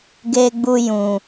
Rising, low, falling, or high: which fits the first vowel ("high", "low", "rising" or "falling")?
low